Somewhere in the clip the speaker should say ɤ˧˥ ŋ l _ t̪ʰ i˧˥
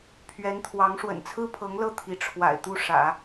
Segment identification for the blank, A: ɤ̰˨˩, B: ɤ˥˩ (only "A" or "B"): B